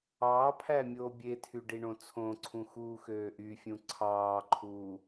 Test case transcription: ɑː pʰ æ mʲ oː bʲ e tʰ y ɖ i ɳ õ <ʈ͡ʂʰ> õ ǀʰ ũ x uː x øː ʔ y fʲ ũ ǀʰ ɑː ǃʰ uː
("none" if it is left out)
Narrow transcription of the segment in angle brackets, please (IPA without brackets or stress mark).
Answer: t͡sʰ